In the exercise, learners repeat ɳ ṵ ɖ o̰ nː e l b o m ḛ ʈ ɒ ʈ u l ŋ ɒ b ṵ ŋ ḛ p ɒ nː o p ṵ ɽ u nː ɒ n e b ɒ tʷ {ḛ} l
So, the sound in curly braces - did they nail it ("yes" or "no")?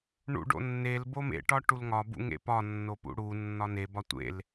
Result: yes